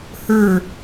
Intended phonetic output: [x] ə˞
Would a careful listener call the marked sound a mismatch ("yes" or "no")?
yes